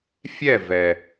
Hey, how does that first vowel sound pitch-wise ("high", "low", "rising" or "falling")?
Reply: falling